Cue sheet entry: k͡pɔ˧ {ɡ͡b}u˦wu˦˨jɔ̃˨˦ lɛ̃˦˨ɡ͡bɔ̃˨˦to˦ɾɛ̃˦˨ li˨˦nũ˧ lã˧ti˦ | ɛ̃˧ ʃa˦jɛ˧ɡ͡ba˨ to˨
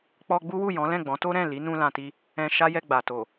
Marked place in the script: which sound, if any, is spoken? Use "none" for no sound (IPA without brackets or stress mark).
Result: ɡ͡b